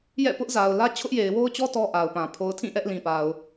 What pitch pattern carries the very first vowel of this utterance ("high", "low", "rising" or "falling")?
falling